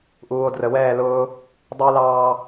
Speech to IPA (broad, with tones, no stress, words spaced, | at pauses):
ʔuː˨o̯drə˨wɛː˦˨lʊː˦ | dˤə˞˦lɑː˦